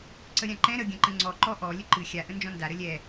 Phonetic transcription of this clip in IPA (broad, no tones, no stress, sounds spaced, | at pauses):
ǀ ə ɾʲ ã ǃ ɛ̃ ɾ ə ɡʲ ə̃ ǃ ə̃ ŋ͡ǀ ɔ ǃ ɔ ʔ ɔ lʲ ə ǃ ɨ xʲ a ʔ ə̃ n d͡ʒ ɔ̃ n d a ɾ ə lʲ ɛ